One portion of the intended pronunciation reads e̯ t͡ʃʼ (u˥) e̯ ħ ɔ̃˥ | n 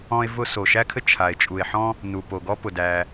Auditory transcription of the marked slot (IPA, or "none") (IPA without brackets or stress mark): u˩